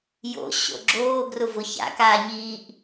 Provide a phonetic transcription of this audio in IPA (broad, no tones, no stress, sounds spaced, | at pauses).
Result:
j o̰ ɕ o̰ ɡ͡ǁ oː ɡ r ʊ v ʊ ç a̰ k aː ɲ iː ʔ